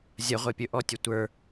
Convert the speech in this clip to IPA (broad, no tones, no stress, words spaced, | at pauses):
zʲɐʁʷe pʲɵʔɔtʲɵ tʷə˞